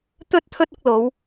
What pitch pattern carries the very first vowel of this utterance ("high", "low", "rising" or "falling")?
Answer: high